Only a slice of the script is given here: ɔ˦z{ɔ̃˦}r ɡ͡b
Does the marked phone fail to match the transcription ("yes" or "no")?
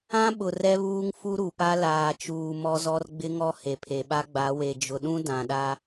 yes